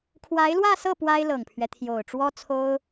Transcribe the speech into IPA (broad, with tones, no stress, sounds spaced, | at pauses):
kʰ w a˧˥ ɪ̯ l w ä˥˧ s ɤ˥˩ p w a˥ ɪ̯ l ɤ˨˩ ŋ pʰ ɥ ɛ˦ t̪ʰ j o˨˩ ʊ̯ ʈ͡ʂ w ɔ˥ t͡sʰ o˥ ʊ̯